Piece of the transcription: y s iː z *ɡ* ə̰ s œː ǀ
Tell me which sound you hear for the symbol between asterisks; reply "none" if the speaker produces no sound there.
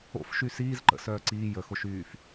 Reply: ǃ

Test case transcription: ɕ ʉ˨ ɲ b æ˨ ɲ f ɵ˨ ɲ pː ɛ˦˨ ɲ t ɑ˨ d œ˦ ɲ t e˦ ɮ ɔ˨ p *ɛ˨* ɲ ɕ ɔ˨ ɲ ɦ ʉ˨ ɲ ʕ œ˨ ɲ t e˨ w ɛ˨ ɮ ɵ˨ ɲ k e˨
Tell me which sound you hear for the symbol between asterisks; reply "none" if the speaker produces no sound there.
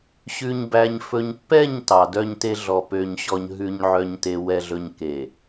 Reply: ø˨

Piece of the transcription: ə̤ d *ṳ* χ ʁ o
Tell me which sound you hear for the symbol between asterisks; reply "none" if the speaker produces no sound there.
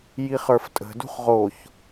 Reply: ṳ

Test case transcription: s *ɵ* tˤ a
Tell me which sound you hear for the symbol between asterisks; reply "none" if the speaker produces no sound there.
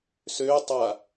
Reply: ø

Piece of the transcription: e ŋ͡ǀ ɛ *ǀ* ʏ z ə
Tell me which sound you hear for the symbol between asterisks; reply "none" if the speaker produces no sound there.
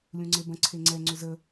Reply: ŋ͡ǀ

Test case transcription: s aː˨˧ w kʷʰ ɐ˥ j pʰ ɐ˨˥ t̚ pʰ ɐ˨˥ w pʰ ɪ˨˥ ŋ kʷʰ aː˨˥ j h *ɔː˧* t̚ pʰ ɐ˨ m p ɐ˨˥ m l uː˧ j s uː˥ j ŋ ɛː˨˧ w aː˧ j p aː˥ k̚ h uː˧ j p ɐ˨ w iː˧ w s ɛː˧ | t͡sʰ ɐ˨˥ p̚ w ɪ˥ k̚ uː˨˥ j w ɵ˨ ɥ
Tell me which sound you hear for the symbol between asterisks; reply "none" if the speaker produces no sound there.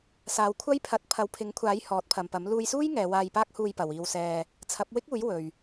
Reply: ɔː˨˥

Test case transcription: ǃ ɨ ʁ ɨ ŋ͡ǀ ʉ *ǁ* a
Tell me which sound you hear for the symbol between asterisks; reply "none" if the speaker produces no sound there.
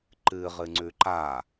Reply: ǃ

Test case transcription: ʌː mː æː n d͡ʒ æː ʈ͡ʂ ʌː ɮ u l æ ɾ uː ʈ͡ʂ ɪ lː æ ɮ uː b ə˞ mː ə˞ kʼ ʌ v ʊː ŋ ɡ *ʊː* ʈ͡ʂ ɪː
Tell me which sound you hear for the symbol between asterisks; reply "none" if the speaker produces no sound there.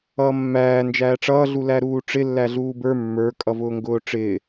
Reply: ʊː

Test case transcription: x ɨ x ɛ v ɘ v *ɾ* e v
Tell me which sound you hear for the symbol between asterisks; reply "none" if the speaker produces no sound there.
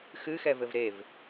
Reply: ɾ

